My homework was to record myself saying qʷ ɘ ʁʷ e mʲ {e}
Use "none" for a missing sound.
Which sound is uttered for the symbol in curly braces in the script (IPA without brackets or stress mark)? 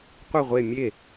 e